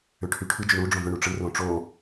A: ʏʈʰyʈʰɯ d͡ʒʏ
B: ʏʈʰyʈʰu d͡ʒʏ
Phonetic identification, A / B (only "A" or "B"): A